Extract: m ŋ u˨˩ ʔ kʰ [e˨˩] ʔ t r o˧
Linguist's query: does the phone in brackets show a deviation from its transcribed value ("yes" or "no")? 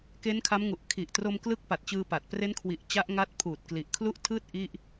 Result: yes